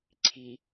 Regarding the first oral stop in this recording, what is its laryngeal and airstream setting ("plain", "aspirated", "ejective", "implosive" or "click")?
click